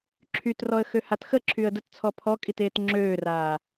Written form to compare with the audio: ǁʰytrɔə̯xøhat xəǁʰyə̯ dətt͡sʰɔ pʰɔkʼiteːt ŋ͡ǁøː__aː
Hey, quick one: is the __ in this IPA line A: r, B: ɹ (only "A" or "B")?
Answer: A